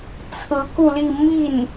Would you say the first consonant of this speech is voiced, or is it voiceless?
voiceless